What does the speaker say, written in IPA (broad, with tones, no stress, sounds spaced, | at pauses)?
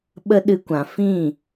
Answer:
ɓ ə˦ ɗ ɨ˧ kʷ ã˨ f ĩ˦˨